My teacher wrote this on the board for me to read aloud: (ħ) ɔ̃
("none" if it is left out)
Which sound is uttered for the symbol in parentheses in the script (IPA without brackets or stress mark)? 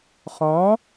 χ